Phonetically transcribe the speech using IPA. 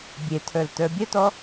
bʲ e tʰ ə˞ l t ə˞ bʲ ə t ɔ

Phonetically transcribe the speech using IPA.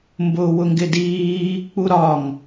m b ʊː w ʊ ŋ ɡ ɪ d iː | k͡p u ɾ ɒ ŋ

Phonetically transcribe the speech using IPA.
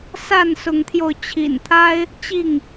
s a˥˨ n s ʊ˨˦ ŋ t̪ʰ j o˧ ʊ̯ t͡ɕʰ ḭ˨˩ n t̪ʰ a˦ ɪ̯ | t͡ɕ i˥˨ ŋ

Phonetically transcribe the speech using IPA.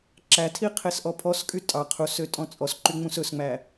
ǁ æ tʰ i qʰ e s ʔ ɔ pʰ ɔ s kʼ y tʼ ɑ qʰ u s ø tʼ ɔ̃ t͡sʼ ɔ s ǃ y ŋ͡m ũ s ɵ s ŋ͡m æ

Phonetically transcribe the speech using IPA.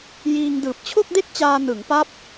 j iː˧ ŋ d ɯː˨˩ p̚ t͡ɕʰ o˥˩ k̚ d e˥˩ k̚ t͡ɕ aː˧ n ɯ˩˦ ŋ p a˦˥ p̚

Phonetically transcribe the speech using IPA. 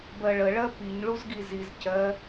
b ɜ ɭ ə ɭ ɜ p i ɲ ɭ u z ɡ i z i z c ɜ

